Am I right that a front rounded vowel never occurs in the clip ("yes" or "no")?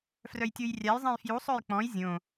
no